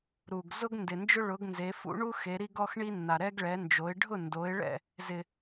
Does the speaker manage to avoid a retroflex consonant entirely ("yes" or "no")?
no